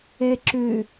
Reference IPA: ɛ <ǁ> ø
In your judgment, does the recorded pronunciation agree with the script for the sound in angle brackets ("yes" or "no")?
yes